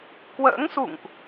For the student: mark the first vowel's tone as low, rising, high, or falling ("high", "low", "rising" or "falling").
rising